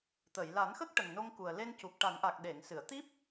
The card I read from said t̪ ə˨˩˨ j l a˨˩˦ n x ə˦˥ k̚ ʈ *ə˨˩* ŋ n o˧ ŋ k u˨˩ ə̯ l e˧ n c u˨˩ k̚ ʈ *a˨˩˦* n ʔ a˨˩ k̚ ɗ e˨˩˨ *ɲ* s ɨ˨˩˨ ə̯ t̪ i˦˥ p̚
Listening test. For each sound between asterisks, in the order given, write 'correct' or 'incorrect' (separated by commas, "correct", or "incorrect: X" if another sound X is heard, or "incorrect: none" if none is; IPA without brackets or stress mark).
correct, correct, incorrect: ŋ